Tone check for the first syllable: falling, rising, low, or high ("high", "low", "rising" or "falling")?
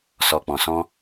low